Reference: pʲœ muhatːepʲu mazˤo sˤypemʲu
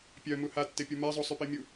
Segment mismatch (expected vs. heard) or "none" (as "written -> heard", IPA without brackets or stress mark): none